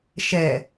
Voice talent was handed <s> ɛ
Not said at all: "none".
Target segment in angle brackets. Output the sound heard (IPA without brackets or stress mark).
ʃ